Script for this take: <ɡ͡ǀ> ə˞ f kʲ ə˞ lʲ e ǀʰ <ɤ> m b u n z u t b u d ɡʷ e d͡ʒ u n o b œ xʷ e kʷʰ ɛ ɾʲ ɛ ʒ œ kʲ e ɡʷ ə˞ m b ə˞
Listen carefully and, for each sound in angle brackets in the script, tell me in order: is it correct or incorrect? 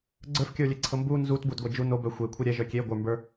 correct, correct

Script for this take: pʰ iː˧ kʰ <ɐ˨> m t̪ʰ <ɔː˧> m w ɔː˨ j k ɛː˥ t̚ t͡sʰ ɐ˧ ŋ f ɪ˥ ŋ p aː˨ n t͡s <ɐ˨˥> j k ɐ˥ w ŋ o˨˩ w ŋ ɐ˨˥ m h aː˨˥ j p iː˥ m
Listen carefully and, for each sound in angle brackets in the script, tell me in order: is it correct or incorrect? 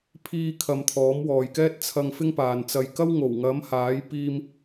correct, incorrect, incorrect

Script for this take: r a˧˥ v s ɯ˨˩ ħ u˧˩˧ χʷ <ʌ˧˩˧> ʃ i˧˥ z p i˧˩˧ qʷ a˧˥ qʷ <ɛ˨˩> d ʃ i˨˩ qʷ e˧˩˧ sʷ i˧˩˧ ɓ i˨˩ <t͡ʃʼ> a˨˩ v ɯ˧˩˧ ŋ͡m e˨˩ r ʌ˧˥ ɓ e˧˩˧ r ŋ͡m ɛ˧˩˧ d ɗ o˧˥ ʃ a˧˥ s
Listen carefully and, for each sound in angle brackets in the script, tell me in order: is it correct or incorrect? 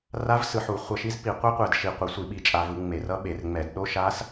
correct, correct, correct

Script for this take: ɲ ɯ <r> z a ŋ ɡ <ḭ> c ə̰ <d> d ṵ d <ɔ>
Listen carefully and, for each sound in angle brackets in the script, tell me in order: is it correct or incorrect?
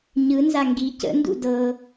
incorrect, incorrect, incorrect, incorrect

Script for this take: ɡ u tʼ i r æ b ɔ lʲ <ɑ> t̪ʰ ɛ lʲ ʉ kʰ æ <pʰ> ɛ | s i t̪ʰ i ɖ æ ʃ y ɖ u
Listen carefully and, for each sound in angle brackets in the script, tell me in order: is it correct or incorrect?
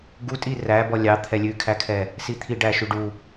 correct, incorrect

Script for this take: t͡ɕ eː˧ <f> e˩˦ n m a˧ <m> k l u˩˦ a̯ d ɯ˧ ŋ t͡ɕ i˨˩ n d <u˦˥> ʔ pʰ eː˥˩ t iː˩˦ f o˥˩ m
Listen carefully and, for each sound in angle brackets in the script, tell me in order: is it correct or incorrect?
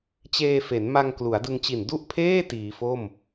correct, incorrect, incorrect

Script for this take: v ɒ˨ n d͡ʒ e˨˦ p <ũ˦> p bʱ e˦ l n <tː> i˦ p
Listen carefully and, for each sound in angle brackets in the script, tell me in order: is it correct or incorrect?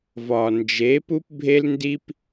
incorrect, incorrect

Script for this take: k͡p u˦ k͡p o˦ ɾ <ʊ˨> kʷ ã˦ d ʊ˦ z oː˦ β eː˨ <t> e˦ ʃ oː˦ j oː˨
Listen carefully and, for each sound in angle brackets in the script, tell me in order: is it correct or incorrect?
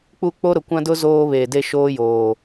correct, incorrect

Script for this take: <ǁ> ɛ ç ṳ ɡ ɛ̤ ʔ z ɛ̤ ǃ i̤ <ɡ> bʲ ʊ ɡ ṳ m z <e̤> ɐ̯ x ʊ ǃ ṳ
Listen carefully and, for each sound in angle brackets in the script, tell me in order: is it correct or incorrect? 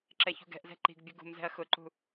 correct, correct, incorrect

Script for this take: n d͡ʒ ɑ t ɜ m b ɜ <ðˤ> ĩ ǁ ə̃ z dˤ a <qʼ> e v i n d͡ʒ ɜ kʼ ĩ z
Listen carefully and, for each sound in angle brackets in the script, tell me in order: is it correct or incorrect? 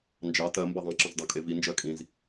correct, incorrect

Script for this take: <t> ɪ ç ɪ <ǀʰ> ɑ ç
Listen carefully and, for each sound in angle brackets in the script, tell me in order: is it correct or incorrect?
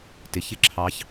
correct, incorrect

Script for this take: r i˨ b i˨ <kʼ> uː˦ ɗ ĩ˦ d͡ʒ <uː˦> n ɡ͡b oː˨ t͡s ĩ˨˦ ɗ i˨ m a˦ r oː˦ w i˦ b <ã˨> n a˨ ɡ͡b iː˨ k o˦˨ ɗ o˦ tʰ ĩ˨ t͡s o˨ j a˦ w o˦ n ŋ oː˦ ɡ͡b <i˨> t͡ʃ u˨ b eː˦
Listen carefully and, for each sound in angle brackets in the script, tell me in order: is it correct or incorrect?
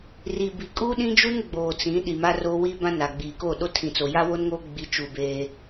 correct, incorrect, incorrect, correct

